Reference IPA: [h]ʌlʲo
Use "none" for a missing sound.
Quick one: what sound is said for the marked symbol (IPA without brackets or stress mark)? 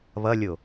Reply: β